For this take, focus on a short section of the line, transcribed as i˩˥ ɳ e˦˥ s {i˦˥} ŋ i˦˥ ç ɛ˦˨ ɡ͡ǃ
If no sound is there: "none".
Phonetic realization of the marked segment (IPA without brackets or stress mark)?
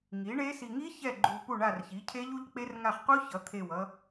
i˨